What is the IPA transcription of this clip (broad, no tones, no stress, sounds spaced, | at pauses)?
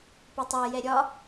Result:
p ʊ tˤ ɛ j ɛ ɾʲ ɒ